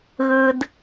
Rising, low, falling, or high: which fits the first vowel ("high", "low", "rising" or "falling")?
low